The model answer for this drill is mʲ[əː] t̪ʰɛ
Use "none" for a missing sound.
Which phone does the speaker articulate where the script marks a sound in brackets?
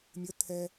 ə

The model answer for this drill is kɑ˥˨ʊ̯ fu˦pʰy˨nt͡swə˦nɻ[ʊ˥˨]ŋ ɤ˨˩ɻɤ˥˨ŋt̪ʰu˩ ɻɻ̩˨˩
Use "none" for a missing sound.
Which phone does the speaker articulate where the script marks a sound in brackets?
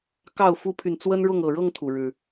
ʊ˥˨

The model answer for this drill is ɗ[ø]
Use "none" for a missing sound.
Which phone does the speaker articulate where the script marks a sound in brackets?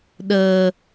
ə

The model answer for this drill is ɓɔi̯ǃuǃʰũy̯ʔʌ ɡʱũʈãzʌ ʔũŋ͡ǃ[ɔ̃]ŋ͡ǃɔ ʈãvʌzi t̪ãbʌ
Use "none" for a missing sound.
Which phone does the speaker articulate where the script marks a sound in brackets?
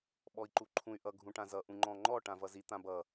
ɔ̃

